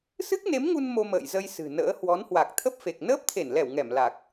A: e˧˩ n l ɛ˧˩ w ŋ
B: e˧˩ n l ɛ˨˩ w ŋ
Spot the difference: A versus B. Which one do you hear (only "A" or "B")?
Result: A